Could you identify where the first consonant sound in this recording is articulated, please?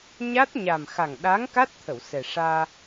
palatal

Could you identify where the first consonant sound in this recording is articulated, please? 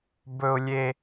labial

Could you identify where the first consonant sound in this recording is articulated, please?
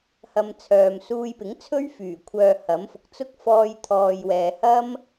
glottal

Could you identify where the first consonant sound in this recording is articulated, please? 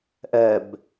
glottal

